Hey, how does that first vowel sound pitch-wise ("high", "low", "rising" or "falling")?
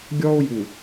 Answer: high